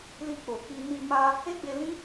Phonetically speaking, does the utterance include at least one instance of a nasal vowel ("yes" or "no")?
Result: yes